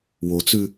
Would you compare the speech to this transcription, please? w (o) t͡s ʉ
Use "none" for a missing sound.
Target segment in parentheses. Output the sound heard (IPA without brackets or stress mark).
o